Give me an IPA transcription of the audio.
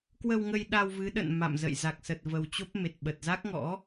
k w ə˧ w ŋ ə˧ j ɗ a˧ w v ɨ˨˦ ɗ ə̰˧˨ n m a̰˧˨ m z ə̰˧˨ j z a˨˩ k̚ s ə˨˩ t̚ v ə˨˩ w t͡ɕ o˦˥ p̚ m e˨˩ t̚ ɓ ə˨˩ t̚ z a˦˥ k̚ ŋ ɔ̰˧˥

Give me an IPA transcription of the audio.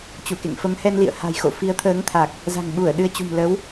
t͡ɕ u˧˩ k ḛ˧˨ ŋ f ə˨˦ m h ɛ˧ n l ḭ˧˨ ə̯ h a̤˨˩ j x o̰˧˨ f i˨˦ ə̯ t̪ʰ əː˨˦ ŋ t̪ʰ a˨˩ k̚ | z a̤˨˩ ŋ ɓ u˧˩ ə̯ ɗ ɨ˧ ə̯ t͡ɕ ṳ˨˩ m l ə˨˦ w

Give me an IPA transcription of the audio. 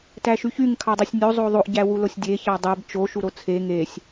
t æ ʃ y ç y ŋ kʰ ɑ dˤ e sʲ nʲ o zˤ o ðˤ o ʔ ɟ æ w u l o sʲ dʲ e ç ɑ dˤ e b t͡ʃ o ʃ u ɾ o t͡sʰ e ŋ e sʲ

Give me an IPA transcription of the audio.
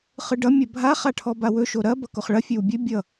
χ ɯ ɖ ʌ mʲ ɐ bʱ a χ a ʈʰ ɔ b a w ɵ ʃ o ɾ ɐ b ʌ k o χ ɭ ɐ fʲ ɵ w bʲ ɵ bʲ ʌ

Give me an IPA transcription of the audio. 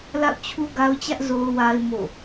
l a̰˦˨ ʊ̯ t͡ɕʰ u˦ ɡ a˦ ʊ̯ t͡ɕ ä˦ ʔ z o˨ ʊ̯ w a˨ ɪ̯ m o̰˦˨

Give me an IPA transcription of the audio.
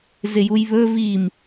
z ɪ j u j β ɵ v i m

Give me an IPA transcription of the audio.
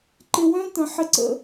ǃ ɪ˧ w œ̃˦ t ə̃˧ ħ ɪ˦ ǀ ə̰˧

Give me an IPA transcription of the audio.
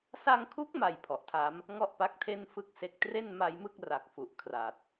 s a˧ ŋ kʰ u˦˥ k̚ m a˨˩ j pʰ ɔ˨˩ ʔ tʰ a˦˥ m | ŋ ɔ˥˩ ʔ p a˦˥ k̚ tʰ e˥˩ n f ɯ˥˩ k̚ s e˦˥ k̚ t r e˥˩ n m a˧ j m ɯ˥˩ k̚ r a˨˩ k̚ f u˨˩ ʔ kʰ r a˨˩ t̚

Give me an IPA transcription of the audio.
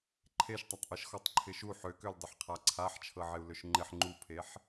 ǃʰ e ʃ tˤ a tˤ ʔ ɤ ʃ x ɔ tˤ ǃʰ ɪ ʃ u ħ ø k ø l dˤ ɪ ħ qʰ a ǀʰ a ħ t͡ʃʰ ɤ ʕ ɪ u̯ l ø ʃ ŋ͡ǃ ɪ ħ ŋ͡ǃ u pʰ e ħ

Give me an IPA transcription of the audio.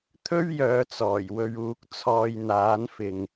t̪ʰ ɵ˥ ɥ j œː˨˧ t͡s ɔː˨˩ j w ɵ˧ ɥ uː˨ k̚ t͡sʰ ɔː˨ j n̪ aː˨˧ n f ɪ˨ ŋ

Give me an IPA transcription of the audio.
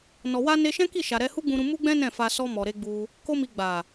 n ɔ˨ w a˧ n e˧ ʃ ɛ̃˦ k i˦˨ ʃ a˨ ɾ ɛ˧ h u˦ ɡ͡b ũ˧ ɾ ũ˧ m u˦ ɡ͡b ɛ̃˦ n ɛ̃˦˨ f a˧ s ɔ˧ m ɔ˨ ɾ e˧ ɡ͡b u˧ | k o˦ m i˧ ɡ͡b a˨

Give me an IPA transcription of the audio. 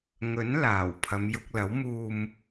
ŋ ɵ˨˥ n l aː˨˩ w pʰ ɐ˨˧ m j ʊ˧ k̚ l ɐ˨˥ w m uː˨ m

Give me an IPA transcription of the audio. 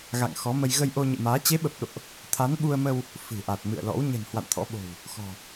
ɣ a̰˧˨ ŋ x ɔ˨˦ m ə˧ j ɣ ə˧ j ʔ o˧ ɲ ɨ̰˧˨ m aː˨˦ t͡ɕ e˨˦ ɓ ə˨˩ p̚ ɗ o̰˧˨ ʔ | t̪ʰ a˨˦ n ɓ u˧ ə̯ m ə˧ w | f ɨ̤˨˩ ʔ a˨˩ t̚ m ɨ̰˧˨ ə̯ l ɔ̰˧˥ w ɲ ə̤˨˩ n h w a̰˧˨ n t̪ʰ ɔ̰˧˥ ɓ o̤˨˩ w | x ɔ̤˨˩

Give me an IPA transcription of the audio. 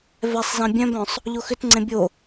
v ɛ sˤ z ɛ̃ bʲ œ̃ b œ̃ sˤ | ʎ o x ʏ t ŋ͡ǀ ẽ bʲ o

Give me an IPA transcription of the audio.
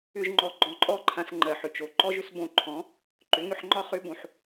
ʏ˧ ʒ ŋ͡ǃ ɔ˧ ɡ͡ǃ ɔ̃˧ ǃʼ ɔ˦ ǃʰ ã˧ s ŋ͡ǃ ɜ˨ ħ ʏ˨ t͡ʃ o˨ ǃ ɔ˦ ʒ ʏ˦ s b õ˧ ǃʰ ɔ̃˨˦ | ǃ ʏ˨˦ ŋ ʏ˧ ħ ŋ͡ǃ ɒ˦ χ ʏ˦ b õ˧ ħ

